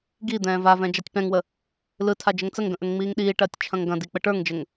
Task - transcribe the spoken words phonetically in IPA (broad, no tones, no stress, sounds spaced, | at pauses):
ɡ i d̪ ɛ̃ː v a v ɛ̃ d͡ʒ a tʲ p ɛ̃ ŋ w ə | l ɯ tʰ a d͡ʒ ə ŋ t͡s ə ŋ ɡ ə̃ ʔ ə ŋ ŋ͡m iː ŋ ɗ iː ʈ ɐː tʲ t͡ʃʰ ɐ̃ ŋ ɡ ɐ̃ d i k͡p ə ʈ ə˞ ŋ d͡ʒ ə ŋ